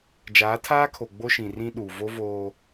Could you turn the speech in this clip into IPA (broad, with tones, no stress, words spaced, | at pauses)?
d͡ʒaː˨˦tʰaː˦kʰo˨ ɡ͡bo˦ʃĩ˨rĩ˦ɗuː˨ vo˦ voː˦